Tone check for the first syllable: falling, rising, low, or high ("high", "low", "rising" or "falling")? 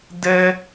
high